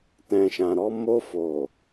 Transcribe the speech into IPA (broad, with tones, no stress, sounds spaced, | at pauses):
t ɛ̃˨ ʃ ã˨ ɾ ɔ˧ m o˧ f o˨